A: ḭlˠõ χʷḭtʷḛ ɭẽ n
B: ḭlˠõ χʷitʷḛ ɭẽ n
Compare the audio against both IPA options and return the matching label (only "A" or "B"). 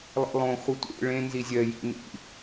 B